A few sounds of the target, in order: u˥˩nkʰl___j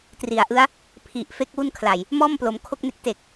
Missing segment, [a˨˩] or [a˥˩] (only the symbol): a˨˩